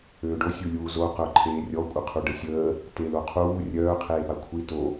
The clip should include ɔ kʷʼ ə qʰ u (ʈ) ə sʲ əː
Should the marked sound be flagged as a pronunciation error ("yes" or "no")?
yes